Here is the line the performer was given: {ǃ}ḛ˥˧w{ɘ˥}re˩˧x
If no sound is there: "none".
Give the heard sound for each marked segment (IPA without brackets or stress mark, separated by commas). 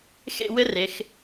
x, ɘ˥